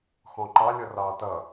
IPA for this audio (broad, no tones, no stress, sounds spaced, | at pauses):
x ɔ̃ ǃ ɑ lʲ ɔ r ɑː t ʌ